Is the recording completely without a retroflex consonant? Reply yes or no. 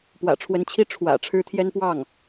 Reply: no